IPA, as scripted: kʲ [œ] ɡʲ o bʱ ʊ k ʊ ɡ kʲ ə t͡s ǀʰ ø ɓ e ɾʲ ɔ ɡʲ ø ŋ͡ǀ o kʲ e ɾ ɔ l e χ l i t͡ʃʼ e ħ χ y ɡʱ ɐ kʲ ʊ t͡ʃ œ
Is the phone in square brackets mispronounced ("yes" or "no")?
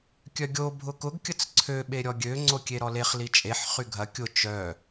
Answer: no